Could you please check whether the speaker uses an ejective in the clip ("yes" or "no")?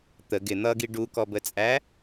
yes